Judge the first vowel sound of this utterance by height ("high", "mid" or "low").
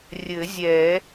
mid